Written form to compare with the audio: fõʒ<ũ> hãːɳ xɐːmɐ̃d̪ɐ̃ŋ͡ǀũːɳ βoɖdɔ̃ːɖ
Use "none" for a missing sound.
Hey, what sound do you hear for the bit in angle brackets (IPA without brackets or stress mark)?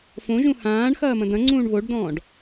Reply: ũ